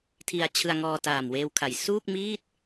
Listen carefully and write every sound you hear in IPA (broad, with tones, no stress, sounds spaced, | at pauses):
tʰ i˧ a̯ t͡ɕʰ ɯ˧ a̯ ŋ ɔː˧ t aː˨˩ m w eː˧ w kʰ a˩˦ j s uː˥˩ k̚ m iː˥˩ t̚